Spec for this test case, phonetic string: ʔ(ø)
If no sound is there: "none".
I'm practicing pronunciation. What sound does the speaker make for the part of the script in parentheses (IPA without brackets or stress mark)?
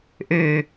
ø